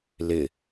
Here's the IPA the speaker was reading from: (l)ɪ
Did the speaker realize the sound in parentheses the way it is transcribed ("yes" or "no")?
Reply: yes